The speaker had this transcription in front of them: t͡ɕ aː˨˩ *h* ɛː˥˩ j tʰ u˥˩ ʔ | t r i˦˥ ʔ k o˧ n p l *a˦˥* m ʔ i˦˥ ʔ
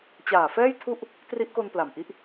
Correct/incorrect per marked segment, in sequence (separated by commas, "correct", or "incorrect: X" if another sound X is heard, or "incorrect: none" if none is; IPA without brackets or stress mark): incorrect: f, incorrect: a˨˩